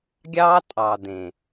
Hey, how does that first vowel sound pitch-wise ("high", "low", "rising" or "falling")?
high